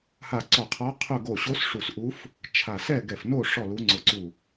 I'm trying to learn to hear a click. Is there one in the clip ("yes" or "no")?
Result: yes